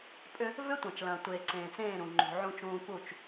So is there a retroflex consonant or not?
no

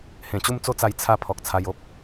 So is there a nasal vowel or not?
yes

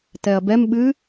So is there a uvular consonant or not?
no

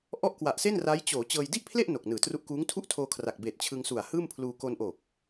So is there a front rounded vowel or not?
no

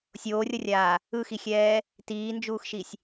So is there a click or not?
no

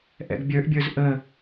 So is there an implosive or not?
no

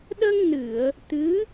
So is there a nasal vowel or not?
no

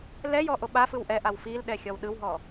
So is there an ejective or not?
no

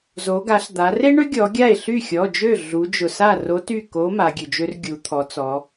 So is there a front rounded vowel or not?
yes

